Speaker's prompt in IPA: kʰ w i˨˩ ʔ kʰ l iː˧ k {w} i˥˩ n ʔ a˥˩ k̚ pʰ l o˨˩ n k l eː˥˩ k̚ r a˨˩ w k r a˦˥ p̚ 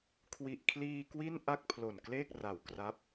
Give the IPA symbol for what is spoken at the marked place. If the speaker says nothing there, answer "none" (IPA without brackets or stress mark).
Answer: w